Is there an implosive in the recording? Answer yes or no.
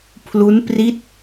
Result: no